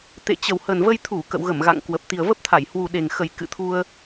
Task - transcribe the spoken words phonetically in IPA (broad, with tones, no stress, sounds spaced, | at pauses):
t̪ ḛ˧˨ t͡ɕ ə˨˩ w h ə˨˩ n v ə˧ j t̪ʰ u˧˩ k ə̰˧˨ w ɣ ə˧˩ m ɣ a̰˧˨ ŋ k w ə˨˩ p̚ t̪ i˨˩ ə̯ v ə˦˥ p̚ t̪ʰ a˧˩ j h w u˨˩ ɗ e˨˩ ŋ x ə˨˩ j k ɨ̰˧˨ t̪ʰ u˧ ə̯